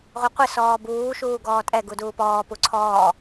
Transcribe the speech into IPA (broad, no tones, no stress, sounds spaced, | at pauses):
ʁʷ ɪ qʷ ɪ s ɔː b uː ʃ uː ɡ ɔː tʼ ɛ ɡ u d uː p ɔː p u ǀʰ ɔː